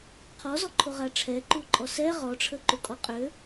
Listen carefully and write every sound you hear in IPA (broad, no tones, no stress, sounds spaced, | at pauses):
qʰ ɔ z ɔ ǃʰ o ʁ a ʈ͡ʂʰ ɛ ǃ u ǃʼ ɔ s ɛ ʁ ɔ ʈ͡ʂʰ ə ǃ u kʼ ɔ qʼ ø